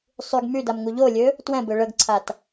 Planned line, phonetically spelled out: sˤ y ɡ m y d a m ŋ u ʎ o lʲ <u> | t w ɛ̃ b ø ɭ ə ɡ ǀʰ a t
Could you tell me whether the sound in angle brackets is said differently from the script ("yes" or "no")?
yes